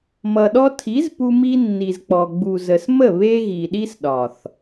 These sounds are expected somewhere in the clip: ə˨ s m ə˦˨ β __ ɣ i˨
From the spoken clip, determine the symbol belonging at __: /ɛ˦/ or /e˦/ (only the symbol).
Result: e˦